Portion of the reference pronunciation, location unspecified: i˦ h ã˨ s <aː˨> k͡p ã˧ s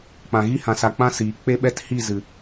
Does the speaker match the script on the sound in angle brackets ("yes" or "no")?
no